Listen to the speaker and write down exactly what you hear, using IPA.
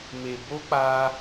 m e˨ b o˧ k͡p a˧

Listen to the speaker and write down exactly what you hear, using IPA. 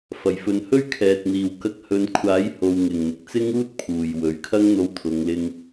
f ɐ˨˩ j f ɵ˨ n h ɵ˥ ɥ kʰ ɛː˨ t̚ n̪ iː˨ w k ɐ˧ k̚ h ɵ˨˧ n kʷʰ aː˨˥ j h o˨ w ŋ ɪ˨ ŋ n̪ ɪ˨ k̚ t͡s ɪ˥ ŋ uː˥ t̚ pʰ uː˨ j w ɵ˨ ɥ kʰ ɐ˥ ŋ n̪ o˧ w t̪ʰ ʊ˨˧ ŋ l ɪ˧ ŋ

